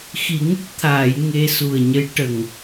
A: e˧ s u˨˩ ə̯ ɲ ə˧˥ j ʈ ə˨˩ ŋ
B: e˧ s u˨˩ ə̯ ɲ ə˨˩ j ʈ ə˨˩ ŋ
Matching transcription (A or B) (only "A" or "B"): A